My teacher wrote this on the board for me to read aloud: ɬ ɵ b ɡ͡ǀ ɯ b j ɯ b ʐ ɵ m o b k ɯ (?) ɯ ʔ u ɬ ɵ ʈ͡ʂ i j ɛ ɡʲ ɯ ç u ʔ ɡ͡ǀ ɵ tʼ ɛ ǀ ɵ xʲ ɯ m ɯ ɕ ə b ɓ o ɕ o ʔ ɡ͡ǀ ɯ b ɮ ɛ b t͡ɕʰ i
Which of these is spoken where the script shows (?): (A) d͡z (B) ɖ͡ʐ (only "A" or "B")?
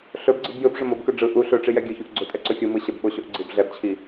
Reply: B